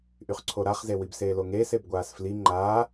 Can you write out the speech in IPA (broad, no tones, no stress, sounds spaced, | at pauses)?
ʔ y χ ǀʰ o ɾ a χ z e w i b s eː l o ŋ eː s e b ɡʷ aː s f l i ŋ͡ǃ aː